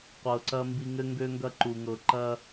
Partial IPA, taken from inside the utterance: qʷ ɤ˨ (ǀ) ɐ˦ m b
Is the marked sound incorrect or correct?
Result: correct